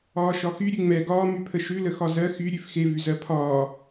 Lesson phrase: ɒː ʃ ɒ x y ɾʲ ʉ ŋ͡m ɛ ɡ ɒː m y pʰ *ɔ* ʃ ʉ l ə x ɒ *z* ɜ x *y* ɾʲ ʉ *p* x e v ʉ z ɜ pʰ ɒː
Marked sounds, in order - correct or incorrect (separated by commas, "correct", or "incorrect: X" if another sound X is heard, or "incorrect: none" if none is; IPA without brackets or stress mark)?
incorrect: ə, correct, correct, incorrect: f